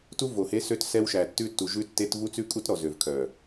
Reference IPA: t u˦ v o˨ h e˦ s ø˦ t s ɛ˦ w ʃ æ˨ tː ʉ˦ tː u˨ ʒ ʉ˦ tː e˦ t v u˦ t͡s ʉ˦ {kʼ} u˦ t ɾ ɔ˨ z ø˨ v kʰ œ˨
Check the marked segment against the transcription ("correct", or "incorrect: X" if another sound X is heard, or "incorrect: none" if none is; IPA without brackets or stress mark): correct